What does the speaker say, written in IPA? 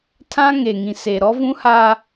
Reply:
tʰ ã˦ ŋ e˨ ŋ ĩ˨ s e˨ ɾ ɔ˦ v ũ˦ h a˦

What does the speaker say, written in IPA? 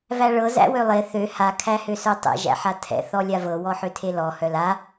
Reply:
v æ ɭ ɤ z æ̰ w ø lˠ e θ ø h a kʰ æ h ø s œ tˤ ɛ̰ ʒ æ̰ ħ a tʰ ɛ̰ θ ɔ lʲ a v ɤ w ɔ ħ ø tʰ e l ɔ h œ l a

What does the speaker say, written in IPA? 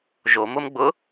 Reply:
ʒ o m ʊ m ɡ͡b ʊ

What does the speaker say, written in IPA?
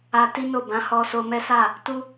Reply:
a˧ t i˦ n o˦˨ b ã˨˦ h ɔ˧ s o˧ m ɛ˦ s a˦˨ | t u˦

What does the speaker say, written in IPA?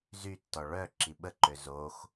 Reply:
z y tː ɔ ɭ œ ǁ i ɓ ə ǃ ø z o x

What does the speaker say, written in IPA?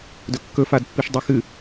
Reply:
d ɵ kː ɵ f a d pː i ʃ dˤ ɨ x ɨ

